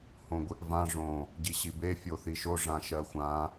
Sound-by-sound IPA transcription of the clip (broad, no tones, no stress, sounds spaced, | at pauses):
h õ ɡʷ i ʔ v ã ʐ õ | ɟ i ɕ i b e fʲ o θ i ʃ o ʐ ã ʃ ɜ xʷ ã